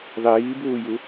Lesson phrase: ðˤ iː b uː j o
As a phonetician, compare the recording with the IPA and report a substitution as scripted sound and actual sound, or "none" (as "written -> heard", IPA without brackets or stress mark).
o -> u